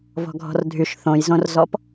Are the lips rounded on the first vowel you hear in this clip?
yes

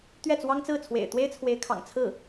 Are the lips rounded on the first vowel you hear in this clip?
no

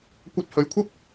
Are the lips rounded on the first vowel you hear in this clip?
no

